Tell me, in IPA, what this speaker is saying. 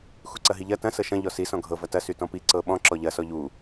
x u ǀ ɐ ɦ i ʎ ɐ t ɐ̃ s ɤ ʃ ɐ̃ ʎ ɔ s i s ɔ̃ ɡʱ ɤ v ɐ t ɐ s y t ɔ̃ p i ǀ ɤ ɓ ɔ̃ ǁ ɔ ʎ ɐ s ɔ ʎ u

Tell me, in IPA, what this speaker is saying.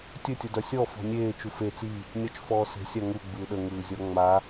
tʲ ɵ tʲ ə d œ sʲ ɔ f ɔ̤ nʲ eː t͡ʃ u f e t͡s i | nʲ ɔ t͡ʃ f ɔː s e̤ sʲ a ŋ u ɡ͡b ɯː ɗ ə ŋ ɯː zʲ ɔ ŋ͡m a

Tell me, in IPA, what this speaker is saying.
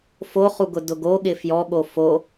f o χ u ɡ ʊ d ʊ ɡ o ɠ ɪ f j ɔ ɠ o f o

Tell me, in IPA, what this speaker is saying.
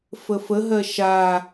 f ə f ə ɦ ɜ ʃ a

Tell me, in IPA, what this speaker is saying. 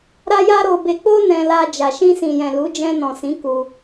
ɾ a˦ j a˦ ɾ o˦ b e˧ k͡p o˦ n ɛ̃˧ l a˧ d͡ʒ a˨ ʃ ĩ˧ s ĩ˨ j ɛ̃˨ l u˨˦ d͡ʒ ɛ̃˧ n ɔ̃˨ s ĩ˨˦ k u˧

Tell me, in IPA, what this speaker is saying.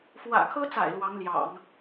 f w ä̰˨˩ kʰ ɤ˥ t͡s a̰˨˩ ɪ̯ l w ɑ˧˥ ŋ l j ɑ̰˨˩˦ ŋ

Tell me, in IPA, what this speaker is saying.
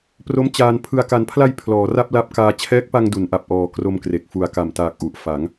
p r o˦˥ m t͡ɕ aː˧ n pʰ ɯ˨˩ a̯ k a˩˦ n pʰ l a˧ j pʰ l ɔː˩˦ r a˥˩ p̚ l a˦˥ p̚ k aː˧ t͡ɕʰ ɛː˦˥ k̚ p a˧ ŋ d u˩˦ n ʔ a˨˩ p̚ ʔ ɔː˩˦ k r o˧ m k r e˨˩ k̚ f u˨˩ a̯ k a˨˩ m t aː˨˩ k̚ ʔ u˨˩ ʔ f a˩˦ ŋ

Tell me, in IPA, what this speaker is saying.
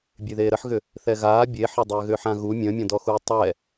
bʲ e ð eː ɾ ə ħ ɣ ʏ | θ ɛ ɣ aː bʲ e ħ ɛ dˤ ʏː ɣ ʏː ħ ã ɣ u mʲ ə̃ː mʲ ɔ̃ d ɔ x u i̯ tˤ ɛ

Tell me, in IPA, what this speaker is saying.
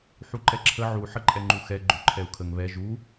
ħ u ǃ ɛ ǁʰ ə ʕ u ħ ə ǃʼ ɛ ŋ͡ǃ u x ɛ ɡ͡ǃ ø ǃʰ ɛ u̯ kʰ ə ŋ β ɛ ʒ u

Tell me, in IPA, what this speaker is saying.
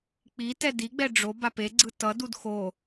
k͡p i t ɛ d i ɡ͡b ɛ ɖ͡ʐ o b a p e ɡ͡ǀ ɯ t ʌ d u d x o

